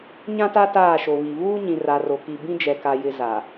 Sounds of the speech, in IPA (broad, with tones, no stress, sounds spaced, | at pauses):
ɲ ã˦ t a˦ t aː˦˨ ʃ o˨ β i˨ β uː˦ ɲ ĩ˨ r a˨ r o˨ k i˨ b ĩ˦ d͡ʒ ɛ˨ k a˨ j ɪ˨ z a˨